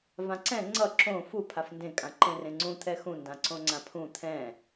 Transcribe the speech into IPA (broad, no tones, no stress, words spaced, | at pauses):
vãǀɛ̃ ŋ͡ǀʌ ǁõ fu pʰafndẽ kʼãǃẽrẽŋ͡ǀũ t̪ʰɛxũ ndãǀõŋ͡ǀãpʰũ t̪ʰɛ̃